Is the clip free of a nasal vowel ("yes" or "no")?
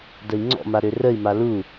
yes